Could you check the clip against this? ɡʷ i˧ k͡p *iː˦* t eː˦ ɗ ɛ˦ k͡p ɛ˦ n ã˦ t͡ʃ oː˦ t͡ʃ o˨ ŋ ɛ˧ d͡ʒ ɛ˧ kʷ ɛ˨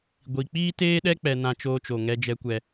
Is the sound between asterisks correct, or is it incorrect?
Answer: correct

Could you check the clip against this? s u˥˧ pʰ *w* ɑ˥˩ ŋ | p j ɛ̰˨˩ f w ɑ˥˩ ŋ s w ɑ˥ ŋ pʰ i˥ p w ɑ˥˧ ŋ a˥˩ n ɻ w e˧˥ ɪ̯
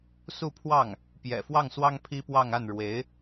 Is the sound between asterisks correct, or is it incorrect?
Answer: correct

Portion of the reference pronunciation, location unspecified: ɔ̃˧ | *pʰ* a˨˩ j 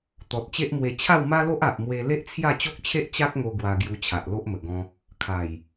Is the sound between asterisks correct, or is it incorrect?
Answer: incorrect: kʰ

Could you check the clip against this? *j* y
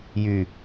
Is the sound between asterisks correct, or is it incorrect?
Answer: correct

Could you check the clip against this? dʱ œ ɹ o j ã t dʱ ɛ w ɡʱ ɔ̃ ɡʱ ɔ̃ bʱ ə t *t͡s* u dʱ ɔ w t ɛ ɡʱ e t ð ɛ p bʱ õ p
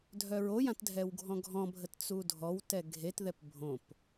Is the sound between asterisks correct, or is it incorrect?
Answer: correct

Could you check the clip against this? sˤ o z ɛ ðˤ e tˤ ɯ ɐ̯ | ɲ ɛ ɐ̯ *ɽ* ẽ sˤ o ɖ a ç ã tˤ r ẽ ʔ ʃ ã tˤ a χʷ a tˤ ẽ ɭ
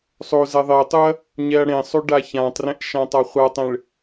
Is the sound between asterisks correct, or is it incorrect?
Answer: correct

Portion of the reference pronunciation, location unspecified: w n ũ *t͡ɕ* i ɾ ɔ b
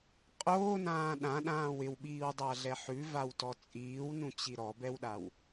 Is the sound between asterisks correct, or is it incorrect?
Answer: correct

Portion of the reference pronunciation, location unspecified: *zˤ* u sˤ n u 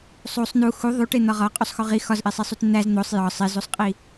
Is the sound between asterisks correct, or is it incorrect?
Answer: incorrect: sˤ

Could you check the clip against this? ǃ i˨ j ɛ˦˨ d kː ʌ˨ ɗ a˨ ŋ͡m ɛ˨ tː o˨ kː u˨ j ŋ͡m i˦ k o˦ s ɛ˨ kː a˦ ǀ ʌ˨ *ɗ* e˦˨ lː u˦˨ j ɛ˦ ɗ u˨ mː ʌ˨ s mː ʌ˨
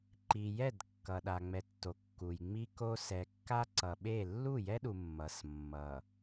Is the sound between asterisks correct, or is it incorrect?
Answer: incorrect: ɓ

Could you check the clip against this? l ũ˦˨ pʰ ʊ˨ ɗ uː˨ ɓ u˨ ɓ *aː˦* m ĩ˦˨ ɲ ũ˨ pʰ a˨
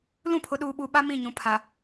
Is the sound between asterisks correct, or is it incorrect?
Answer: incorrect: a˦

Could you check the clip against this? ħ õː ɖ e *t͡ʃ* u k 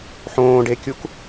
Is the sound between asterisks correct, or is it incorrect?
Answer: incorrect: kʲ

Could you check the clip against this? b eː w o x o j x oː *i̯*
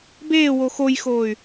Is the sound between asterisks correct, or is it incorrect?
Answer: incorrect: y̯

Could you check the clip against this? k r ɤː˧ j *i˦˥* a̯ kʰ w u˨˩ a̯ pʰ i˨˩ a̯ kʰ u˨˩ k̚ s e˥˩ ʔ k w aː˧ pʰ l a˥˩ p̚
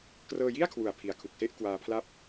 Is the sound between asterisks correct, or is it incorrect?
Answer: incorrect: i˥˩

